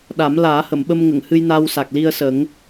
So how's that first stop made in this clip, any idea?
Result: implosive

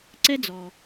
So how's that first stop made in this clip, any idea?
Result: click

